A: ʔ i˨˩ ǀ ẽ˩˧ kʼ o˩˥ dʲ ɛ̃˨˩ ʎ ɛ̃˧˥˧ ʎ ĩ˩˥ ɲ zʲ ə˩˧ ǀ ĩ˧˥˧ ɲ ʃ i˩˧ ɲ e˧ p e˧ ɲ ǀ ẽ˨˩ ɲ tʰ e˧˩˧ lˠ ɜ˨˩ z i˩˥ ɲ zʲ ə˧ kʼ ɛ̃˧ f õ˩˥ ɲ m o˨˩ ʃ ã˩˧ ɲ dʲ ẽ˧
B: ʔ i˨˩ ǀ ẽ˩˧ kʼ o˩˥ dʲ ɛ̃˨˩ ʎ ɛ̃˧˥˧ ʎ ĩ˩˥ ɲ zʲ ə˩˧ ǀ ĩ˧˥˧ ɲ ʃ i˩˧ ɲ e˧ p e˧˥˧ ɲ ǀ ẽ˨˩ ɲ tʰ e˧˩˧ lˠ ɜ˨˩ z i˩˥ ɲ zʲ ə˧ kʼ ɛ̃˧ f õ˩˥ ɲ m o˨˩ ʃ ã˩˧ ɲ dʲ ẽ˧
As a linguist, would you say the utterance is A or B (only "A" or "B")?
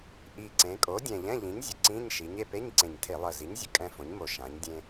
B